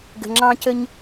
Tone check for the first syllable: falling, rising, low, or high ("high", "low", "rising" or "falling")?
low